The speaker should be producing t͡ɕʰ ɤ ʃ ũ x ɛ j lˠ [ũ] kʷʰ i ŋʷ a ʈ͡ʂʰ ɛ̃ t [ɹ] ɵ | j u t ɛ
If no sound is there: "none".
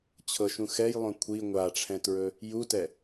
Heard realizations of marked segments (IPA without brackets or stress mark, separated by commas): õ, ɹ